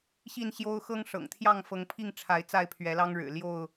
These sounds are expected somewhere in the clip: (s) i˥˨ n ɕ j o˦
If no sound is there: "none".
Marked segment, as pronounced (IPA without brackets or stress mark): ɕ